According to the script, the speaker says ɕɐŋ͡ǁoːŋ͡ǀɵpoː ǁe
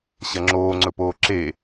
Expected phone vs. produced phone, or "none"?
none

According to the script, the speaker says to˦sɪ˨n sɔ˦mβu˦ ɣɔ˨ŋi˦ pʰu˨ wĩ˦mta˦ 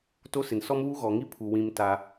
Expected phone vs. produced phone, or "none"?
none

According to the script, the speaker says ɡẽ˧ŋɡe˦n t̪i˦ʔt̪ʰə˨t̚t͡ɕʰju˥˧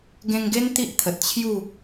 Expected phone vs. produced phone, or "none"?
none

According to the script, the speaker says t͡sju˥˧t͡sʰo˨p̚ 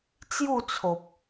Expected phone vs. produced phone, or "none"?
none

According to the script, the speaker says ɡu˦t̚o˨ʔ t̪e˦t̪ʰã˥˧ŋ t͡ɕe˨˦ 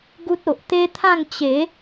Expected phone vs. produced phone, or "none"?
none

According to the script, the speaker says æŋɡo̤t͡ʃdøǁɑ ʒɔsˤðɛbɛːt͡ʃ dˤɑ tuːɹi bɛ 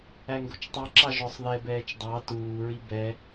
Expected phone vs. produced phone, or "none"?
d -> tˤ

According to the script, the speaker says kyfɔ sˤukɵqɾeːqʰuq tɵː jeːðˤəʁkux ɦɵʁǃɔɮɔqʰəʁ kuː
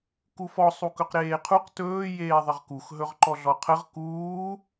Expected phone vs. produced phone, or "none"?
y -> u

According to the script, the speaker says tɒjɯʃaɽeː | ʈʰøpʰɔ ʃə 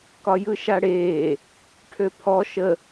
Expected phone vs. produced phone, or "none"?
t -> k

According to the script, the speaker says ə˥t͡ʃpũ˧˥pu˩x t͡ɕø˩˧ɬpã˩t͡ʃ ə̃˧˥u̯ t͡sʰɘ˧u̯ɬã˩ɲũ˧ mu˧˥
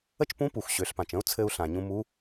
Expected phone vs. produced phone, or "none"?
t͡ɕ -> ɕ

